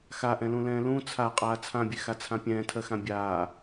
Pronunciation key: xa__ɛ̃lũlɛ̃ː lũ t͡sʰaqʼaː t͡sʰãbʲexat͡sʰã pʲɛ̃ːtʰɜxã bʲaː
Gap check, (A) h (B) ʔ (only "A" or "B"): B